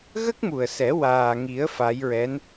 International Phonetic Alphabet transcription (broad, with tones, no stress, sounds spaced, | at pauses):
ɣ ə˦˥ k̚ m u˨˩ ə̯ s ɛ˨˩˦ w aː˨˩ ŋ i˨˩˦ ə̯ f a˧˥ j ɹ ɛ˧˥ n